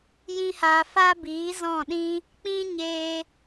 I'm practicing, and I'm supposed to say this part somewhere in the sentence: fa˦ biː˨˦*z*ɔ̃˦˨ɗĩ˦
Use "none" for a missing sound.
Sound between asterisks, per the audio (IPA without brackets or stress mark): z